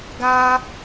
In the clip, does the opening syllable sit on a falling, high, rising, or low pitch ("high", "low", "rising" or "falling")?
high